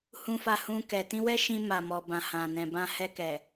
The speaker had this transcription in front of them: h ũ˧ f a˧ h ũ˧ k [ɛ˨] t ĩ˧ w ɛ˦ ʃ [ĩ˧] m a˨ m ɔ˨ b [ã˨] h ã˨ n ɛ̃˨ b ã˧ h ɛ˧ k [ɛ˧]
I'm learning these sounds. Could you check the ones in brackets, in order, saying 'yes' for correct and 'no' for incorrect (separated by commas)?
yes, yes, yes, no